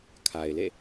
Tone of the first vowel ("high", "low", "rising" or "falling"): low